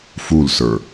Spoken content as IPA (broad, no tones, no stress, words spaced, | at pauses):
fulsə˞